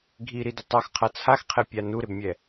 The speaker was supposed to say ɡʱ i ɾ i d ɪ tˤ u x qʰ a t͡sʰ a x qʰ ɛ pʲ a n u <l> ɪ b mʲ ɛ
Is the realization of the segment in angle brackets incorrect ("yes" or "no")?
yes